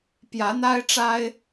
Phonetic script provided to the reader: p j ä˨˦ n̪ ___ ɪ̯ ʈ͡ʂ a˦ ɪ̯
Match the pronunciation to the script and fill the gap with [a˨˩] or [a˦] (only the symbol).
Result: a˦